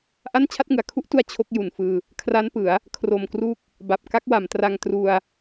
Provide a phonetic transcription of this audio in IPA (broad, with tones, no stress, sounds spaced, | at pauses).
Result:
ʔ a˥˩ n t͡ɕʰ a˥˩ t̚ ŋ ɯ˩˦ a̯ kʰ u˦˥ ʔ t u˧ a̯ t͡ɕʰ o˦˥ k̚ j u˨˩ n f ɯː˧ | kʰ r a˦˥ n p ɯ˩˦ a̯ | kʰ r o˨˩ m k r u˦˥ k̚ | b a˨˩ p̚ k a˦˥ k̚ w a˩˦ m t r a˧ ŋ t r u˧ a̯